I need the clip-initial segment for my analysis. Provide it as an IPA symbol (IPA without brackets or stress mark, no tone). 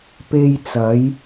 p